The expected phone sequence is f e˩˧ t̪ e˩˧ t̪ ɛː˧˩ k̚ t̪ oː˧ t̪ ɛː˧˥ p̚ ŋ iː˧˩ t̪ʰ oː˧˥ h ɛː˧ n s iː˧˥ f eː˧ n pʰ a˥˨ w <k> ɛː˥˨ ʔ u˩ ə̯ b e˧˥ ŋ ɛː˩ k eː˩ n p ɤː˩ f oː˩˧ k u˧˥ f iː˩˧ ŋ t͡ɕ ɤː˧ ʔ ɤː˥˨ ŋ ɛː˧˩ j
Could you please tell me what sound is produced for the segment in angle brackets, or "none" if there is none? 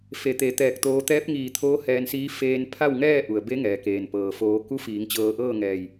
ŋ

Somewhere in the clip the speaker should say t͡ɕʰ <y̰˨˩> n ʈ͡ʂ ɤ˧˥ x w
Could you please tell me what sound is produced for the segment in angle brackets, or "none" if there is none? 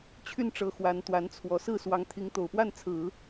y˥˩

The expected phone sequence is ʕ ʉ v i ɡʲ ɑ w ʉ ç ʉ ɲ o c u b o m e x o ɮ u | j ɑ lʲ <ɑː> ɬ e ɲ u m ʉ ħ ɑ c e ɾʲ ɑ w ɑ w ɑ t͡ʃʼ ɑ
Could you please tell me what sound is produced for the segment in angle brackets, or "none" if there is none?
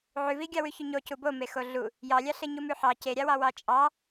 ɑ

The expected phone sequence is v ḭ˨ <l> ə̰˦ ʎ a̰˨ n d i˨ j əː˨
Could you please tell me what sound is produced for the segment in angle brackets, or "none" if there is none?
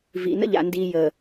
n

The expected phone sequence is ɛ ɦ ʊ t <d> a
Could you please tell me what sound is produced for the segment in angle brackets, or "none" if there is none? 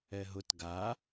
ɡ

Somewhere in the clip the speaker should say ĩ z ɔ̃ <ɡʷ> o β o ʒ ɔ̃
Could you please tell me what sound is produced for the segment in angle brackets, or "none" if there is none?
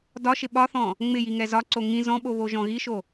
ɓ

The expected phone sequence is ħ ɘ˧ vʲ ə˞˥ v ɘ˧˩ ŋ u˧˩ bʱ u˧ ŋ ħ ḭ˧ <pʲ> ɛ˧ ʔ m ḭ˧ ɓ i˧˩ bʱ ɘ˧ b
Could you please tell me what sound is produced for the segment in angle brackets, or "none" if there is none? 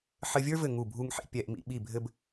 pʲ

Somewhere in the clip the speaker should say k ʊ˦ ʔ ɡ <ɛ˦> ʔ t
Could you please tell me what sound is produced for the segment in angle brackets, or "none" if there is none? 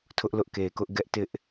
ɛ˦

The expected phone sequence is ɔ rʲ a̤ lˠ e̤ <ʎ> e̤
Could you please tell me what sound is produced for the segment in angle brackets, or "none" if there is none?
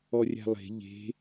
ʎ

